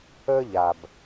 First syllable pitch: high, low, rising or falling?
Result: high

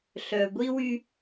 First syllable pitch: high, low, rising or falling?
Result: low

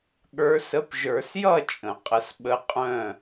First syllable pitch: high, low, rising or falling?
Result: rising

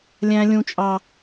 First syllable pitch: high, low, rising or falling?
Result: high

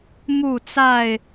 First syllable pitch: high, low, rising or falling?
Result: falling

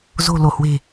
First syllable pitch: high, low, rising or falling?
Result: low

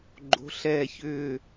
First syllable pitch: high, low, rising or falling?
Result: rising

